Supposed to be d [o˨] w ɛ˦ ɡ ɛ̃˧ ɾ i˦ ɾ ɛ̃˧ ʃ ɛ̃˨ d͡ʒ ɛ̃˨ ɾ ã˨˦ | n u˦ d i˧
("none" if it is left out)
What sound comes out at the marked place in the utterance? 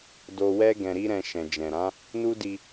o˧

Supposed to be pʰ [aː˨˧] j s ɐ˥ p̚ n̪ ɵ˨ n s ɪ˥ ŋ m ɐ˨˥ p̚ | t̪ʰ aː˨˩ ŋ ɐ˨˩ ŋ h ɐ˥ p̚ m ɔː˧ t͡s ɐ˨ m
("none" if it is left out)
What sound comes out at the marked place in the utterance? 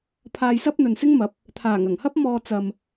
aː˧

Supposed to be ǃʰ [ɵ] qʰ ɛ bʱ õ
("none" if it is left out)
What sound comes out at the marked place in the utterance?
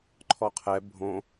ɔ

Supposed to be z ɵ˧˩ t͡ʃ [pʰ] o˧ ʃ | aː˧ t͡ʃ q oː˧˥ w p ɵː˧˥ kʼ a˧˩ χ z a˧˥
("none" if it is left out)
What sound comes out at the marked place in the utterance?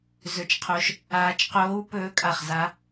qʰ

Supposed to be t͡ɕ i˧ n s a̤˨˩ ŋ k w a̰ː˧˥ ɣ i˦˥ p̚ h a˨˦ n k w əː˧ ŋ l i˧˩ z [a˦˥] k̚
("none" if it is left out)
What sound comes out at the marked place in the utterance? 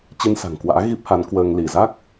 a˦˥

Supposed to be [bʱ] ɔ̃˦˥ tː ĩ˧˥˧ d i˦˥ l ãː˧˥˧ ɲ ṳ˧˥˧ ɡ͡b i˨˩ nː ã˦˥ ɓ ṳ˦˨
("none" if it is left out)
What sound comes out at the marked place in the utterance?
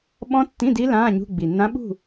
ɓ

